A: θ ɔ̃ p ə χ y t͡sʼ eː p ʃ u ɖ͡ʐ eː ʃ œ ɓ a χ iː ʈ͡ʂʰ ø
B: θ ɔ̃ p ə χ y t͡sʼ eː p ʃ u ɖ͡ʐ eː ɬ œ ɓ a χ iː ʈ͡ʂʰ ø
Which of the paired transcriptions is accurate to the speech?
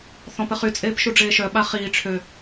A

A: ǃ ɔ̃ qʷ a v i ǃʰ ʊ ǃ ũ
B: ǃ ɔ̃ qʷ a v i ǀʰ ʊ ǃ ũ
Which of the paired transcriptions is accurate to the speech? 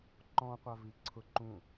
B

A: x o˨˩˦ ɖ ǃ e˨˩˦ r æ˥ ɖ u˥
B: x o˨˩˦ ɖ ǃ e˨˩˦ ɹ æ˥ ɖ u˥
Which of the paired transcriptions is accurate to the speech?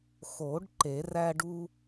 A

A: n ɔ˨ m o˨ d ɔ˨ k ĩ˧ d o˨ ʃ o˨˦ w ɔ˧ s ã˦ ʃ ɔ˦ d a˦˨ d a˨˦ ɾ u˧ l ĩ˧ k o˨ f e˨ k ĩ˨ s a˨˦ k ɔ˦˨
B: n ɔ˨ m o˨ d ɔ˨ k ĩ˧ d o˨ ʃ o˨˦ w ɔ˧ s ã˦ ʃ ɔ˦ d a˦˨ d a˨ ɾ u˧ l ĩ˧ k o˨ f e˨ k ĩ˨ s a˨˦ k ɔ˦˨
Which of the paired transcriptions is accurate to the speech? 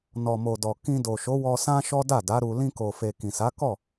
A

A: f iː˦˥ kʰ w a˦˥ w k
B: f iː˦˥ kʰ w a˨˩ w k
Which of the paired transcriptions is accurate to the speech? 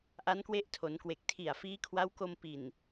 A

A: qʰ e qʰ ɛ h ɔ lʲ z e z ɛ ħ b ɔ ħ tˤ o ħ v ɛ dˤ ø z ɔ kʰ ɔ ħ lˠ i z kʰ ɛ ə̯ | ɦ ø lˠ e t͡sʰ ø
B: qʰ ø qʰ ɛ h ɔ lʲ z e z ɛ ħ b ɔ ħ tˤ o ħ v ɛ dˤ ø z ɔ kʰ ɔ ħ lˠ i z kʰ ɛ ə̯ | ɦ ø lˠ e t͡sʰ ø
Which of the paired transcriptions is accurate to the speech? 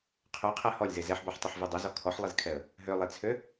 B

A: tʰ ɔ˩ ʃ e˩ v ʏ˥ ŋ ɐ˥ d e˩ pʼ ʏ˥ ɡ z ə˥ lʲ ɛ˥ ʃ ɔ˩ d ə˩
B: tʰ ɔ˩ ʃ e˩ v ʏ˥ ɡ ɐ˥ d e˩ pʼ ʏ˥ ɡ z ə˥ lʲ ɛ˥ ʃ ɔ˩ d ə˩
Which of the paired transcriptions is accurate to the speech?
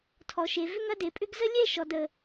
A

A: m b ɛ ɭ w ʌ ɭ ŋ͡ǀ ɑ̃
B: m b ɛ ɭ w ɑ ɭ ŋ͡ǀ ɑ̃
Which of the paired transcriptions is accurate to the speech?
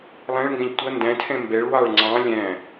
B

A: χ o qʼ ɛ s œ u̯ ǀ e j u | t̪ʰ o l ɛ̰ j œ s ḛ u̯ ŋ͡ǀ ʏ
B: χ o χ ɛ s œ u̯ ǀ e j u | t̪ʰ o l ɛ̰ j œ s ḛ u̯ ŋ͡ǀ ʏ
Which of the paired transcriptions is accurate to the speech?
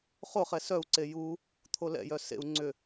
B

